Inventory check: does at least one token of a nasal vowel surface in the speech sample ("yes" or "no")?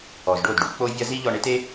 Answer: no